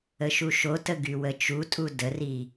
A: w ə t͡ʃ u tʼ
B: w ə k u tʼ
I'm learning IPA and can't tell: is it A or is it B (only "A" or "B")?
A